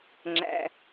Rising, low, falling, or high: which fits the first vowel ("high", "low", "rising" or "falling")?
high